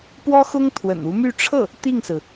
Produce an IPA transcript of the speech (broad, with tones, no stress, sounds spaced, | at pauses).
p w ɔ˥ x ʊ˥ ŋ t̪ʰ w ə̰˨˩ n u˧˥ m y˥˧ ʈ͡ʂʰ ɤ˥˩ | t̪ i˥˩ ŋ s ɹ̩˩